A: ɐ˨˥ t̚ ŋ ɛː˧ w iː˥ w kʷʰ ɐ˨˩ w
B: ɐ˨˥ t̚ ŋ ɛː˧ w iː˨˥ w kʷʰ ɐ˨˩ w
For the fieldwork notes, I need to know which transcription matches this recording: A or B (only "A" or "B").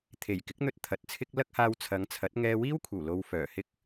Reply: A